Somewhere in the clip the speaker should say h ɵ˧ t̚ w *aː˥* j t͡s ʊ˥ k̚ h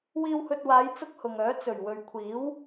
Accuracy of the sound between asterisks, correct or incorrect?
incorrect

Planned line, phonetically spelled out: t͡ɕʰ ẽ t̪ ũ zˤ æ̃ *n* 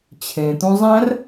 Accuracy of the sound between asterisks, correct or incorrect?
incorrect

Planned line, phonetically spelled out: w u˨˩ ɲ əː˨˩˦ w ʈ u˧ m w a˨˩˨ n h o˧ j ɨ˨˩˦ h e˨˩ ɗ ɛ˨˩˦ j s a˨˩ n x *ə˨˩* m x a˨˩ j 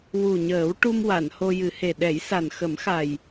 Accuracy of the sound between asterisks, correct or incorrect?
incorrect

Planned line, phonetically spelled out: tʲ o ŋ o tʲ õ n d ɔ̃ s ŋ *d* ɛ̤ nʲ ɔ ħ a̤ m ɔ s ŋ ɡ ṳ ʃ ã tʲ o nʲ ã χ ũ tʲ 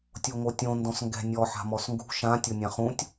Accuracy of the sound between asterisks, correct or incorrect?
incorrect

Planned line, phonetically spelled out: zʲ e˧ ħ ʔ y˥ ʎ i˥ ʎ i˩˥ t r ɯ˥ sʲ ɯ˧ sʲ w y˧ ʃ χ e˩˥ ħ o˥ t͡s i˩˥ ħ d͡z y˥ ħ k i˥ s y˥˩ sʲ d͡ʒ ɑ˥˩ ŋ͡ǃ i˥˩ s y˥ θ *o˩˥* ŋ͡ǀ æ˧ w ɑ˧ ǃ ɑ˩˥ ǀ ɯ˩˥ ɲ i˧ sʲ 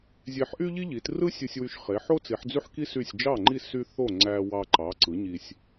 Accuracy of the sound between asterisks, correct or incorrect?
incorrect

